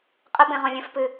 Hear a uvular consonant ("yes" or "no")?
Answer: yes